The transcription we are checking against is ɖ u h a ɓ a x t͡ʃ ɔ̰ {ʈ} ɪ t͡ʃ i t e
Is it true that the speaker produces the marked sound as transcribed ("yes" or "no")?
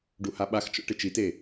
yes